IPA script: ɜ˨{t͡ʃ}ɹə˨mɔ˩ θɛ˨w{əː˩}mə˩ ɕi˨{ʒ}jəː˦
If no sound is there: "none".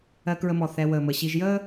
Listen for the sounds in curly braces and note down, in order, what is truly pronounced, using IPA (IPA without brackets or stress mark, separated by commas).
k, əː˩, ʒ